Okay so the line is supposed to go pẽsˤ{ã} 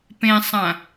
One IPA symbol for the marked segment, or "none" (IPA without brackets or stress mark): ã